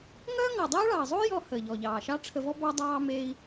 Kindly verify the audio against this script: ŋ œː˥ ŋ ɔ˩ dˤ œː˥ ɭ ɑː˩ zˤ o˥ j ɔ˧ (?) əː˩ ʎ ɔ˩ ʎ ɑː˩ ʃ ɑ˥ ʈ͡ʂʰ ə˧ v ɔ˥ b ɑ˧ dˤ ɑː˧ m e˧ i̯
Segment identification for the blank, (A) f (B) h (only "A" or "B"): B